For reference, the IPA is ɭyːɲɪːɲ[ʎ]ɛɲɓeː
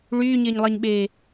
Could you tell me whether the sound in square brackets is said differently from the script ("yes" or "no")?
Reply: yes